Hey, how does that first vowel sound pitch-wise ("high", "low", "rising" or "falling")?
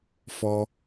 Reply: low